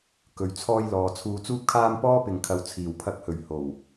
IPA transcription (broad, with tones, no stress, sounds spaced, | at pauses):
k ɵ˨ ɥ t͡sʰ ɔː˧ j l ɔː˨ t͡sʰ uː˨ t͡s uː˧ p̚ kʰ aː˧ m p ɔː˥ p ɪ˨ ŋ kʰ ɐ˨˧ w t͡sʰ iː˨˩ w pʰ ɐ˧ k̚ h ɵ˨˩ ɥ h o˨˩ w